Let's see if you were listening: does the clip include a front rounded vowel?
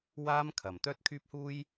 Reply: yes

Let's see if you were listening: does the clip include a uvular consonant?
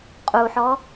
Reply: yes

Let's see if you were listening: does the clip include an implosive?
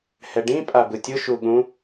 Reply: yes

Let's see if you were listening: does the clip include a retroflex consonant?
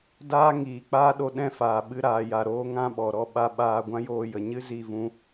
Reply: no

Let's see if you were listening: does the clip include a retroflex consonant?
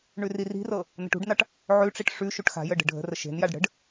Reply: yes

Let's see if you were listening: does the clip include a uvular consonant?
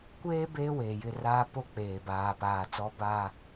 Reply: no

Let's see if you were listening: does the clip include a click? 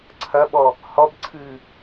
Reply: yes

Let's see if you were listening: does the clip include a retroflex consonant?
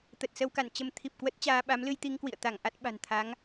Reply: no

